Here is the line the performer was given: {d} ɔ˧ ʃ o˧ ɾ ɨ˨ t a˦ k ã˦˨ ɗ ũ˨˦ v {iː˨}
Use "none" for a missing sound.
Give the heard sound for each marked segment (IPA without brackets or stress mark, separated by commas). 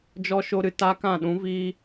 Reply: d͡ʒ, iː˦